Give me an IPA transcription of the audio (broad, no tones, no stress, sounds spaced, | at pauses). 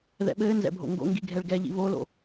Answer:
ð ɛ̰ ɓ ɘː n z ɛ̰ bʱ o̰ ŋ ɡ o̰ ŋ ɡ i ɡʱ ɛ ɭ ɡ ɛ ʎ ḭ β o l o̰